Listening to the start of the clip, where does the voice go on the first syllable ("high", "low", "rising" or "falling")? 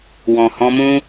low